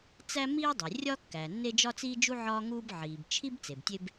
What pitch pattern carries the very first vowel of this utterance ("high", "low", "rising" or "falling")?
high